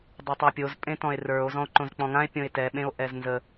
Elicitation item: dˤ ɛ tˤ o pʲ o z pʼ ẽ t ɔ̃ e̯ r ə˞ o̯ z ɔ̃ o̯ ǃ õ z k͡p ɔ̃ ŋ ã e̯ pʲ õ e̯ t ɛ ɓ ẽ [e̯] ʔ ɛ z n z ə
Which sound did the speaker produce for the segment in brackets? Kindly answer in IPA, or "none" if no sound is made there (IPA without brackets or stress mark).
o̯